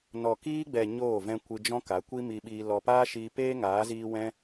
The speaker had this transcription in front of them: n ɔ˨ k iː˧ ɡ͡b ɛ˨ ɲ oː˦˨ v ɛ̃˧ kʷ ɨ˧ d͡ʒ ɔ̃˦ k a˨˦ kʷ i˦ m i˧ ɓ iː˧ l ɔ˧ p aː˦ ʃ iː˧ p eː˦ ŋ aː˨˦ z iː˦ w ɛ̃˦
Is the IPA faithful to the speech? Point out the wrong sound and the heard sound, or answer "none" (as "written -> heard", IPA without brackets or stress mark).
none